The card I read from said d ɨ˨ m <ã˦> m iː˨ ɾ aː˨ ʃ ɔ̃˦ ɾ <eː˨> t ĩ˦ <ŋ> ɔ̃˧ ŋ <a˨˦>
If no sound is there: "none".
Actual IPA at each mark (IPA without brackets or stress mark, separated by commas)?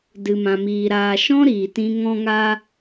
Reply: ã˨, iː˨, ŋ, a˧